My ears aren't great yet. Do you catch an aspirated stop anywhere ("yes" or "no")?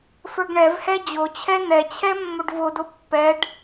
yes